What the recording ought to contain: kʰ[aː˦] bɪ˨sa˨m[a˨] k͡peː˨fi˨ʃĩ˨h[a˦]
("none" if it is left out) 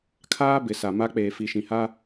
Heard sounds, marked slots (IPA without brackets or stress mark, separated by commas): aː˦, a˦, a˦